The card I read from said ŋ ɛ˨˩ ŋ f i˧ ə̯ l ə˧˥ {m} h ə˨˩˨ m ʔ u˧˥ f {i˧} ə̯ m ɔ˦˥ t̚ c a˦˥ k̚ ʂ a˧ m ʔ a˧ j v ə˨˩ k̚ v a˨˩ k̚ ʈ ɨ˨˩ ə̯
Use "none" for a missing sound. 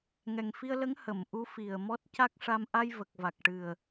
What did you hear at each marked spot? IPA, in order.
ŋ, i˨˩

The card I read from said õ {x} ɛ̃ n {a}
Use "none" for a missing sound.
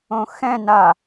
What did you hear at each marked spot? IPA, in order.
x, a

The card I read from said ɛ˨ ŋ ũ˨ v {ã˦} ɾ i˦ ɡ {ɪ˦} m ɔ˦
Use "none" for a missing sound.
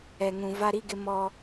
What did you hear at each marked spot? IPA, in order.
a˦, ɪ˦

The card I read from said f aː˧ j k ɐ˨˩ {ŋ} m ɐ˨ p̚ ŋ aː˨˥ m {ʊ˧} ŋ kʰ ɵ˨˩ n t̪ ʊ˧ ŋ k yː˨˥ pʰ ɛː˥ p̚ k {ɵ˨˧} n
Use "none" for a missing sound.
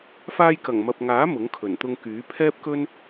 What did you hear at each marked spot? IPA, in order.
ŋ, ʊ˨˥, ɵ˥

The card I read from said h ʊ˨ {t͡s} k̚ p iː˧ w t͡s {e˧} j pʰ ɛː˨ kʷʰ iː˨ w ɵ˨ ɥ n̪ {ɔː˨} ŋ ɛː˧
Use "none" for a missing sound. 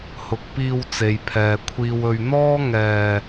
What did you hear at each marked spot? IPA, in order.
none, e˨, ɔː˥

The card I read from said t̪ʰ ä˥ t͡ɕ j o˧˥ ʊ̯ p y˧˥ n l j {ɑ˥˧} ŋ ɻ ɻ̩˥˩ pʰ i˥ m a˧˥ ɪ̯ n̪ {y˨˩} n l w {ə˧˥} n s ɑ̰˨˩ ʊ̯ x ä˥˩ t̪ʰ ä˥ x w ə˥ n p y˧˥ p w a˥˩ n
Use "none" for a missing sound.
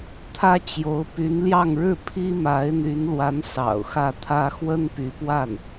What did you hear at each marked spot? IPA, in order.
ɑ˥˧, y˧˥, a˧˥

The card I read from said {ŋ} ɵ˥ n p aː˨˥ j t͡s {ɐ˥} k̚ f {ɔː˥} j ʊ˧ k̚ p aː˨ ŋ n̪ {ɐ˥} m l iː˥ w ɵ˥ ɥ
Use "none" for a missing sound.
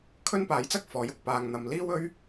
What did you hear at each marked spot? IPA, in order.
kʰ, ɐ˥, ɔː˨˥, ɐ˨

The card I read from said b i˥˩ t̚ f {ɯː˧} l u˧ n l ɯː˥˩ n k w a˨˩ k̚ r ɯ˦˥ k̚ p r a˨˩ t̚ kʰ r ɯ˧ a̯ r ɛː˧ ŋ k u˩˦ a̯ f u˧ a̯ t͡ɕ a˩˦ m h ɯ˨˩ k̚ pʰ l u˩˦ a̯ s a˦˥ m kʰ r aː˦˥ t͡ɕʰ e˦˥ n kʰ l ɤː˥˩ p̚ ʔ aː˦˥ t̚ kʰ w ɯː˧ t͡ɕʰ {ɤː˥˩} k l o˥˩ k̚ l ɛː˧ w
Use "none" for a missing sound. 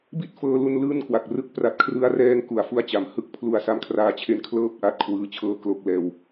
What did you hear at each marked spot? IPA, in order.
ɤː˧, ɤː˥˩

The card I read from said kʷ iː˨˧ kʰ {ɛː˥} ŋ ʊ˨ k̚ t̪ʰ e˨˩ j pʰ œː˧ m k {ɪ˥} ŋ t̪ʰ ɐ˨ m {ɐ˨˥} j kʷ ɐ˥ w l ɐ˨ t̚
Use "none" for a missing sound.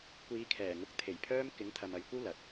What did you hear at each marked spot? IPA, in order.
ɛː˨˩, ɪ˨˥, ɐ˨

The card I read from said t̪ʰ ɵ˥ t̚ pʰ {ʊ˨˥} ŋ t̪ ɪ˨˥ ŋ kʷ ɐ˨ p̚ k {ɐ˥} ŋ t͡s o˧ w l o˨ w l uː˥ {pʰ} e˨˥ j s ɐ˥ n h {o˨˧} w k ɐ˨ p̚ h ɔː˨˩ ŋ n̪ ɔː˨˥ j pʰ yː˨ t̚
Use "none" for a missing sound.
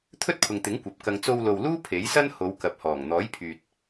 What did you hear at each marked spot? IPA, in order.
ʊ˨, ɐ˧, pʰ, o˨˧

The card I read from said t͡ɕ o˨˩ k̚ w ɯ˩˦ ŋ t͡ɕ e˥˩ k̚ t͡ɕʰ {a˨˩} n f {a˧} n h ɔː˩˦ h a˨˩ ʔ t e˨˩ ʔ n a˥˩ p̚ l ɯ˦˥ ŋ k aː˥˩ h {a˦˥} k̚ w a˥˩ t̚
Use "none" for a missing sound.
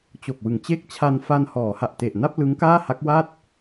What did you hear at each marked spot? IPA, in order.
a˧, a˧, a˦˥

